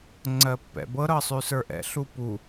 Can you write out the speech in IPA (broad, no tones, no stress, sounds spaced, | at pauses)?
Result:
ŋ͡ǀ ɜ pː ɛ̰ b ɤ ɾ ɤ sˤ ʉ s ə˞ ʔ ɛ̰ ɬ u p u